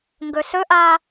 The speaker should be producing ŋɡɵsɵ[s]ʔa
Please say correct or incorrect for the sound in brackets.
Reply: incorrect